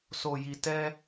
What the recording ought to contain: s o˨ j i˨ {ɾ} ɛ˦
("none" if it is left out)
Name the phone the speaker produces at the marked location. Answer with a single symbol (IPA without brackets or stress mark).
t